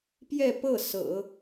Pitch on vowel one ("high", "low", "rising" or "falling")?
falling